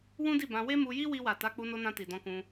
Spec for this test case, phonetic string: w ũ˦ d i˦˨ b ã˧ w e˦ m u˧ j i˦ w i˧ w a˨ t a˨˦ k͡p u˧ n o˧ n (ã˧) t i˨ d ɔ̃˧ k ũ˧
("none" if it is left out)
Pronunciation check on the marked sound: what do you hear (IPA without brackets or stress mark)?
ã˧